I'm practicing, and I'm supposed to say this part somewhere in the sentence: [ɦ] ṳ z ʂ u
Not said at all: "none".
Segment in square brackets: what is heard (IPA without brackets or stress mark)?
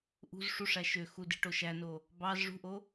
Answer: ʔ